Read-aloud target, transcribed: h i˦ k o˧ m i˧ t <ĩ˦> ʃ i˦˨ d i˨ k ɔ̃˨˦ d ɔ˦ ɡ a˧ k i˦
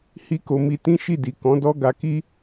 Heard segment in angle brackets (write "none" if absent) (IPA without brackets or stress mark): ĩ˦